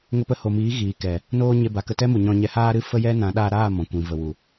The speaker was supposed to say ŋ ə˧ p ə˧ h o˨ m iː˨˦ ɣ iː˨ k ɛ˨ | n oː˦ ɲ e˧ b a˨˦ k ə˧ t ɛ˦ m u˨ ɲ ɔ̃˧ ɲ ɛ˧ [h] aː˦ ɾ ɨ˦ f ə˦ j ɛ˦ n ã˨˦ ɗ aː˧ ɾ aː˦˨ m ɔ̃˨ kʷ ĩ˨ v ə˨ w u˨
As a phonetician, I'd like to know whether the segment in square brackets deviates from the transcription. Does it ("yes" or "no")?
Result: no